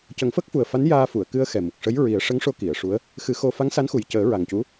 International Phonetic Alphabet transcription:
c ə˨˩˦ ŋ f ə˦˥ k̚ f u˨˩ ə̯ f a˧˥ n j aː˧ f u˨˩˨ ə̯ k ɨ˧ ə̯ x ɛ˨˩ m u˨˩ k̚ ʂ ə˧˥ j ɹ i˨˩˦ ə̯ ʂ ə˧˥ ŋ ʂ o˧ k i˨˩˨ ə̯ ʂ u˧˥ ə̯ | x ɨ˨˩˦ x o˧ f a˧˥ ŋ s a˧˥ n x u˨˩ j c əː˨˩˦ ɹ a˨˩ ŋ c u˧˥

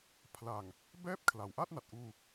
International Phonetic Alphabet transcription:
pʰ l a˨˩ ŋ | b ɛː˦˥ p̚ kʰ l a˩˦ w ʔ a˥˩ t̚ n a˨˩ t̚ ʔ uː˧

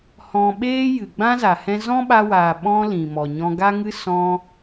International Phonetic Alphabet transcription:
h ɔ̃˧ ɓ eː˦ j ɨ˨ ɡ͡b ã˦ z a˨ h ɛ̃˦ z ɔ̃˦ ɓ a˧ w aː˨ ɓ ɔ̃˧ l ĩ˨ m ɔ˨ ɲ ɔ̃˧ ɡ a˦ ŋ ɨ˦ s ɔ̃˧

